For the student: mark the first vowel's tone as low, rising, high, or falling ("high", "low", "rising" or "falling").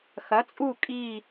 rising